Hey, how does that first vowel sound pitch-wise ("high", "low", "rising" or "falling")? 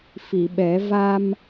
low